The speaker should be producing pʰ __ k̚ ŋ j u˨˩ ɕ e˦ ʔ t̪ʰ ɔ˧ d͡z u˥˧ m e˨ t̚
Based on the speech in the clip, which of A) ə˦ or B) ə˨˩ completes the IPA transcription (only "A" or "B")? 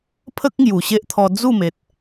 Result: A